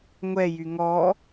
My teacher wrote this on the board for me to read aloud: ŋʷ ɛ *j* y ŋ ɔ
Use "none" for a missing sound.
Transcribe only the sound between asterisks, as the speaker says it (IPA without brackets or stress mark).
j